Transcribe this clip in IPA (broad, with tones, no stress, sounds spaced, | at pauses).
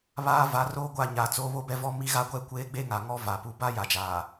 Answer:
β aː˦ v a˨˦ r oː˦ ɡʷ a˦˨ ɲ aː˨ t͡s oː˦ β o˦ b ɛ˦ v ɔ˦ m i˦ ɣ a˦ ɡʷ ɛ˦ kʷ eː˦ ɡ͡b e˦ ŋ a˨ ŋ ɔ˦ v a˨ p u˦ b a˦ j a˨ d͡ʒ aː˨